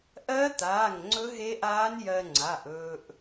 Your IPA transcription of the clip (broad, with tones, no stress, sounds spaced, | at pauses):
ʔ ɜ˦˥ t̪ aː˩˧˩ ŋ ŋ͡ǀ ɵ˦˥ ɦ e˦˥ ʔ aː˦˥ n j ɜ˧ ŋ͡ǀ a˩˧˩ ʔ ɵː˧ ʔ